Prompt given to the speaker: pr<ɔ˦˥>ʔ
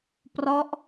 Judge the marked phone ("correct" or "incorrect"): correct